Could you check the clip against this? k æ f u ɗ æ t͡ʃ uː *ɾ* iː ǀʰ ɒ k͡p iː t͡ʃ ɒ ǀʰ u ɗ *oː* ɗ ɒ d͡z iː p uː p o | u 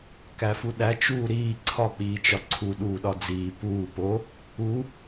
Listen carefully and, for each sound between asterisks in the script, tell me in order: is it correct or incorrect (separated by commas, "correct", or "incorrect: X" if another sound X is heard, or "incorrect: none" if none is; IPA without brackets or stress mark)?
correct, incorrect: uː